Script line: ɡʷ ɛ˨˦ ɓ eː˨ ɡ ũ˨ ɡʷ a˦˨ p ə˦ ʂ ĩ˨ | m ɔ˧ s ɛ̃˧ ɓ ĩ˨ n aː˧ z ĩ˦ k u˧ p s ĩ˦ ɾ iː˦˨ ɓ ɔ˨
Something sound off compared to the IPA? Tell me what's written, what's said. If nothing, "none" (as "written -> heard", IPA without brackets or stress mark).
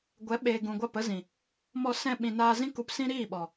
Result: ʂ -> z